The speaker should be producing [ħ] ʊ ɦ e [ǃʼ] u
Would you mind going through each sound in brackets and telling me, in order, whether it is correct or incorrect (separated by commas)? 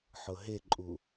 correct, correct